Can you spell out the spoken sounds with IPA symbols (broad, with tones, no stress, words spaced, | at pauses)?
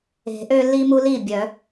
e̤˨˩˦ʔø˦lːi˦ mu˦li˥˩bʲœ˨˩˦